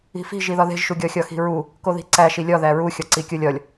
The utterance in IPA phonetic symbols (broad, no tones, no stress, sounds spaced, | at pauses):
i̤ f i̤ ʒ i ð ɒ ð e̤ ʒ ʃ u ɡʲ ɒ xʲ ɒ x i̤ ɹ u | k o ð i̤ ǀ æ ʃ i lʲ ɒ ð æ ɹ u xʲ ɒ ǀ i kʲ o lʲ ɒ lʲ